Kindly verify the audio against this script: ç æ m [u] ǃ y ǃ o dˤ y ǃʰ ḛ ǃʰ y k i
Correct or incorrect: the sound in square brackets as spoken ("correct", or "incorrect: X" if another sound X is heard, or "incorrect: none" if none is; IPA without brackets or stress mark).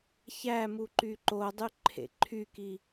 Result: correct